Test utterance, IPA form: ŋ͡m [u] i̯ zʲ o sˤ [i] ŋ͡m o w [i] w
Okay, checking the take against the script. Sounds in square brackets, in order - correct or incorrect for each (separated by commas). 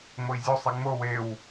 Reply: incorrect, correct, incorrect